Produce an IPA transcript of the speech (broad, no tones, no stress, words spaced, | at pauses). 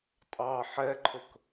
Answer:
tʼɑ ħɛǃʰʊk